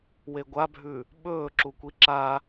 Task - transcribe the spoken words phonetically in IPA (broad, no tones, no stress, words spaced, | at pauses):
weɡʷabʱʉ | ɓɵː ǁukʷiǁa